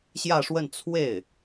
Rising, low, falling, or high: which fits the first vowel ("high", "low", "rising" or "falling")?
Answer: falling